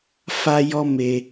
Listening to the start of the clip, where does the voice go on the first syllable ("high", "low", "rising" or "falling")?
high